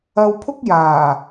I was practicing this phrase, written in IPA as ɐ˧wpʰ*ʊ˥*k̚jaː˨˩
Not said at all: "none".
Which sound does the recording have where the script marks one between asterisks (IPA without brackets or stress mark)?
ʊ˥